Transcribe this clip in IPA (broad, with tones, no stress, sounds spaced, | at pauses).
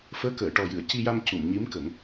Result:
f əː˧˥ k əː˨˩˨ ʈ ɔ˨˩ j ɨ˨˩˨ ə̯ c i˧ j a˧ m c u˨˩˨ m ɲ i˧˥ m k ə˨˩˦ ŋ